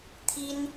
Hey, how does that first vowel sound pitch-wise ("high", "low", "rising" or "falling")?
high